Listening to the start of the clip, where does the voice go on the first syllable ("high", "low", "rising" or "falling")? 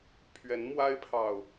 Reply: rising